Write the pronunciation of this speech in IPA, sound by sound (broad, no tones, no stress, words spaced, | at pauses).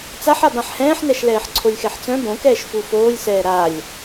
t͡saħab ãħhɛ̃ːħnɛʃ lɛːħǀʰolʲxɛħt͡sœ̃ bõkɛːʃ fufoːlʲsɛː ɾalʲ